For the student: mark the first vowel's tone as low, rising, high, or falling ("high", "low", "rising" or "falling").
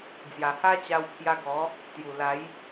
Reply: low